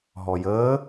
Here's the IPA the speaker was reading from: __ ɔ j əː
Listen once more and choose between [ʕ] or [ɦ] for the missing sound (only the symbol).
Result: ɦ